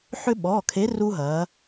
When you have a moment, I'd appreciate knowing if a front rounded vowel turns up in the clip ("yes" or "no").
yes